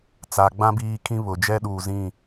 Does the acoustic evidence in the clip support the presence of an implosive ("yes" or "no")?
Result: yes